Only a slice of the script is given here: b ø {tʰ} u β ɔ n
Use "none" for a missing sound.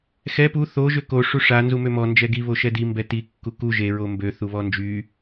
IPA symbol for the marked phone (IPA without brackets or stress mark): θ